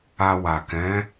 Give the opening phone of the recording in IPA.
a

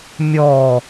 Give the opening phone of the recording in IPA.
mʲ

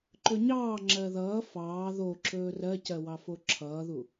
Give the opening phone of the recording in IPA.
ǃ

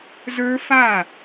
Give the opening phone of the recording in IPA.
z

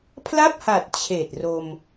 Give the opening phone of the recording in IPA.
pʰ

